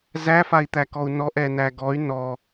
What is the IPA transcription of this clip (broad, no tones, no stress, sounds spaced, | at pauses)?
z æ f a i̯ t̪ æ k ɔ u̯ n ɔ ʔ ɛ n æ ɡ ɔ y̯ n ɔ